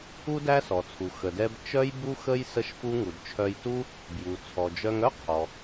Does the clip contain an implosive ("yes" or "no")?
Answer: no